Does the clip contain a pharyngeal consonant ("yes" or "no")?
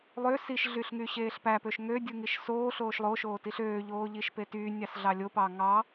no